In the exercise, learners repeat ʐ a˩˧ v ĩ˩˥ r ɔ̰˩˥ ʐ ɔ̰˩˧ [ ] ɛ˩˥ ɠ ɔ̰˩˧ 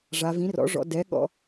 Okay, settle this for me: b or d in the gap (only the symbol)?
d